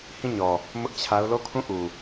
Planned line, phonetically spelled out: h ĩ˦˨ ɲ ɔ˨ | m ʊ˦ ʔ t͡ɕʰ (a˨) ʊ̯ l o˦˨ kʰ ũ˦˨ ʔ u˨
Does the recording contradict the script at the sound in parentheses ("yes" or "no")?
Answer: yes